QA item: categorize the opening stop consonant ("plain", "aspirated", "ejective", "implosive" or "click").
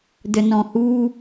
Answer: plain